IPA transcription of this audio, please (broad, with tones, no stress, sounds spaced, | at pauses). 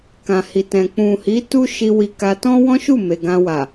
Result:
k ã˨ h i˨ t ɛ̃˨ k͡p ũ˨ h i˨˦ t u˦ ʃ i˧ w i˧ k a˧ t ɔ̃˦ w ɔ̃˦ ʃ u˦˨ m e˨ ɡ ã˧ w a˨